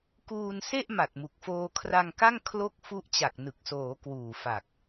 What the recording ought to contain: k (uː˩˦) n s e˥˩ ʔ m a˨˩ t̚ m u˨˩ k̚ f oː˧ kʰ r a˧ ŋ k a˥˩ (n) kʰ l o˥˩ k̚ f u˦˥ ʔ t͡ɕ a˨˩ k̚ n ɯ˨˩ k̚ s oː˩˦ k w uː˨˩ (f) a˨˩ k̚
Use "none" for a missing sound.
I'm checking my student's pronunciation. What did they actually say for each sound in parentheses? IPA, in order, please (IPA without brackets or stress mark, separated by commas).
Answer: uː˧, ŋ, f